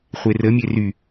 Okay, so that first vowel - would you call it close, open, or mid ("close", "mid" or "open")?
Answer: mid